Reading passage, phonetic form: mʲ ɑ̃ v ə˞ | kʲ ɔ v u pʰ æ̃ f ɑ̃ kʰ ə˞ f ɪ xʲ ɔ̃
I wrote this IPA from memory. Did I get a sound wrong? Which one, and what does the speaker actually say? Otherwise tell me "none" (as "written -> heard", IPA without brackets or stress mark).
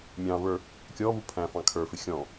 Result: none